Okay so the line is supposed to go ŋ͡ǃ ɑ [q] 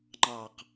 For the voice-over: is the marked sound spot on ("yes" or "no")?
yes